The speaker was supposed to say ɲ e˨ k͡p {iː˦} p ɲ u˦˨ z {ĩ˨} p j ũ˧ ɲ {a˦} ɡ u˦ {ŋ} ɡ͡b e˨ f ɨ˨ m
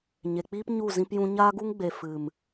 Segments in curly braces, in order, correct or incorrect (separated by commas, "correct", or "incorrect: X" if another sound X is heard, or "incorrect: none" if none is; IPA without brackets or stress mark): correct, incorrect: ĩ˧, correct, correct